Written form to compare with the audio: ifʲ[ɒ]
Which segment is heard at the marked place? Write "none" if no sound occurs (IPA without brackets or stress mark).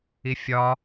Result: ɒ